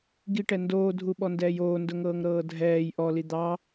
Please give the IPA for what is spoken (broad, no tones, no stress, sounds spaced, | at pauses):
ɡ i ʈ ɛ n d oː dʱ u ɓ ɔ n d ɛː j oː n d ʊ ŋ ɤː ŋ ɾ ɤː dʱ ɛː j ʔ ɔ l i d̪ ɑ